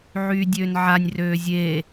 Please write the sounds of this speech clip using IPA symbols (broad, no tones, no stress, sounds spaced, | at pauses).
ʕ yː dʲ øː n ʕ a nʲ r øː zʲ eː